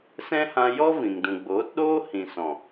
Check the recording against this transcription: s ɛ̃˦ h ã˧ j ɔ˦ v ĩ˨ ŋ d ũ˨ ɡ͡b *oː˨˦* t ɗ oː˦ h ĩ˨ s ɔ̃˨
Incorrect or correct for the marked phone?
correct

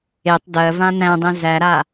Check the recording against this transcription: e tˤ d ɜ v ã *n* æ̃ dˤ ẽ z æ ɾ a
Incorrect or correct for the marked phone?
correct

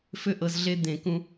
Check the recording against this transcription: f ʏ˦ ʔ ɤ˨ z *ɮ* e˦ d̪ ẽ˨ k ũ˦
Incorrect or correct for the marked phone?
correct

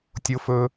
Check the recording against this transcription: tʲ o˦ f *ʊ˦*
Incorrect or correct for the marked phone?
incorrect: ɵ˦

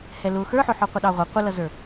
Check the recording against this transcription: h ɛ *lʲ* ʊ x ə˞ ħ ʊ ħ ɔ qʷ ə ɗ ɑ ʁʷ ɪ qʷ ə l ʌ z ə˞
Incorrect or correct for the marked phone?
incorrect: l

